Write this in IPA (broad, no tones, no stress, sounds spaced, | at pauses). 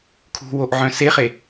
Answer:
kʰ ṳ w o ʔ ʕ œ̃ s e χ e